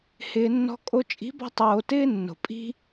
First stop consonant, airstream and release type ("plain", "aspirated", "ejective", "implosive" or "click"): ejective